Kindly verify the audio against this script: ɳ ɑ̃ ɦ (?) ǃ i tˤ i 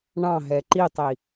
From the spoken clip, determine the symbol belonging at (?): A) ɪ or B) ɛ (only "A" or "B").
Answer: B